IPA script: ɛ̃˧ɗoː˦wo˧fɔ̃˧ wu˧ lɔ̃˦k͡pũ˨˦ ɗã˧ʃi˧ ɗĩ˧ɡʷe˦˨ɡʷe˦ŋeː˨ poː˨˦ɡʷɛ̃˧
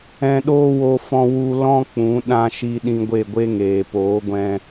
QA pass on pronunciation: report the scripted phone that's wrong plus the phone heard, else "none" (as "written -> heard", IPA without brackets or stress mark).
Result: none